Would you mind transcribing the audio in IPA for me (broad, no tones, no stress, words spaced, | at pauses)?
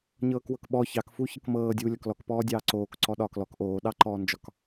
ɲɤːkwɤkɓɔ çɑk fuçɤkmɤːdʲuː lʲɒklɔkpɔːdʲɑː ǀoːk ǀɔɗɒːklɔk ʔoːɗɑǃɔːnd͡ʒɒk